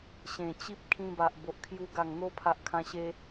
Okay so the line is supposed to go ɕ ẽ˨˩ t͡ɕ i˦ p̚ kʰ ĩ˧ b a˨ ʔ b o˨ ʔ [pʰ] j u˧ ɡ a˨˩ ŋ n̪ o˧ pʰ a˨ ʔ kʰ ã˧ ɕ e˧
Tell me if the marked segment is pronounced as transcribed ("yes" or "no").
no